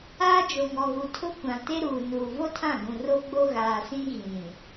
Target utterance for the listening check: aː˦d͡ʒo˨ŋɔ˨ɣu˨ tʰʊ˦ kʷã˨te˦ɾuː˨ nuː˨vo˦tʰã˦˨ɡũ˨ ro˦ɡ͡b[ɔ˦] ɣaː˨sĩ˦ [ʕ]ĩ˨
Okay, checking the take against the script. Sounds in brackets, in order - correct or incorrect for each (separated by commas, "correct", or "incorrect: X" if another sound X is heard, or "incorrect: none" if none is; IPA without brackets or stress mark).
incorrect: o˦, incorrect: ɣ